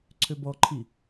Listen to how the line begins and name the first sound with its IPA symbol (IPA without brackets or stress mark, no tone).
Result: ǀʰ